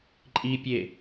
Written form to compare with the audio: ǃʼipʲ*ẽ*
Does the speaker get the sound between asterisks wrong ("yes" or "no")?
yes